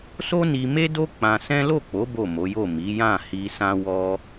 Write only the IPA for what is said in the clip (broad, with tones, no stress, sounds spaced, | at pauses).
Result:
s o˦ n i˧ m e˦ d o˦ k͡p ã˧ s ɛ̃˦ l o˦˨ k͡p o˨˦ b o˦˨ m o˨˦ j o˦˨ m i˨˦ j ã˦˨ h i˧ s ã˦ w ɔ˦